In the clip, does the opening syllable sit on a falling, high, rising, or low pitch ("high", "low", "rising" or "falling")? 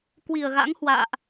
low